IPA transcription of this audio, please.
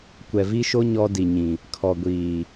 kʷ ɛ˨ v i˦ ʃ o˦ ɲ ɔ˦ d i˨ ɲ ĩ˨ | kʰ ɔ˨ ɡʷ iː˨

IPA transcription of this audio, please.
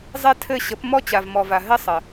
zˤ ɛ˦ tʰ ɘ˦˨ ɕ ə˨˦ p m ɔ˦ t͡ɕ a˨ v m ɔ˨ v a˨ ɦ ɘ˦ sˤ ə˨

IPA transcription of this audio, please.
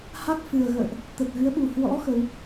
h a˦˥ k̚ f ɨ˨˩ ə̯ ɣ ə̰ː˧˨ ʔ | t̪ ə˨˩ t̚ ɣ ɨ˨˦ ə̯ ɓ u˨˩ h w ɔ̰˧˥ x ə˨˦ w

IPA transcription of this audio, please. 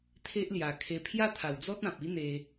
t̪ʰ e˦ ʔ l j a˨˩ kʰ e˧ pʰ j a˥˧ t̪ʰ a˨˩ w d͡z ɔ˦ t̚ ã˨ p̚ i˦ n̪ e˧

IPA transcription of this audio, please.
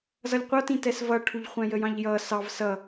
z ʌ lʲ qʷ ʌ t ĩ t ɛ s v ʌ ʈʰ u ʎ χʷ æ̃ j ə j ɑ̃ ʎ j ʌː s ɑ v s ʌ

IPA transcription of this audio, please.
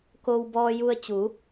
k o˧ w b ɔː˧ j u˧ ə̯ t͡ɕ u˩˧

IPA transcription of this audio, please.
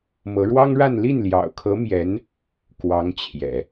m ɤ˧˥ ɻ w ɑ˥ ŋ ɻ a˥˧ n l i˥˩ n l j ɑ̰˨˩ ʊ̯ kʰ ɤ˧˥ m j ɛ˧˥ n | k w ɑ˧˥ ŋ t͡ɕʰ j ɛ̰˨˩˦

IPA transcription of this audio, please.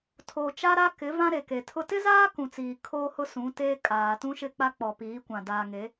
tʰ oː˨ t͡ʃ a˦ ɾ a˦ k ɪ˨˦ v ã˦ ɾ e˨ k e˨ tʰ ʊ˦ t ɪ˦ z aː˦ k ũ˨ t͡s iː˨ kʰ oː˦ h ʊ˦ s ũ˨˦ t eː˦ kʼ aː˨ t ũ˦ ʃ ɪ˦˨ k͡p a˦ k͡p ɔ˨ p iː˨˦ kʷ ã˨ d aː˨ ŋ e˨˦

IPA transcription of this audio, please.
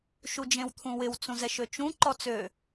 ʃ u d͡ʒ ẽ w t̪ʰ ũ w ɪ w t͡s ũ z ɛ ʃ ø t͡ʃ ũ ǃ ɔ t͡s ø

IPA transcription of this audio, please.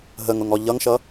ɦ ə ŋ ʊ ŋ ɔ ʎ ʌ ŋ ʃ ʌ

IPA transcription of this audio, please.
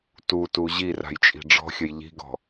t u t u ʑ i r a̤ j t͡ʃʼ i̤ ɖ͡ʐ ɔ̤ xʲ ə j ʎ i̤ ɡ ɔ̤

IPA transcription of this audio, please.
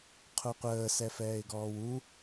qʰ u qʷ əː s ɛ f ɛː ɪ̯ ɡ ɔː w u

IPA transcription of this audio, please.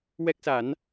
w ɛ˦˥ k̚ s a˨˩˦ n

